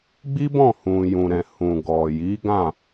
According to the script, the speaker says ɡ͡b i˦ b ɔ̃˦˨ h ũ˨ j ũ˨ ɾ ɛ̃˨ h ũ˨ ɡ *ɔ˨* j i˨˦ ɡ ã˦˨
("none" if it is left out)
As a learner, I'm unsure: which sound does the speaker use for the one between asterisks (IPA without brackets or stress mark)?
ɔ˨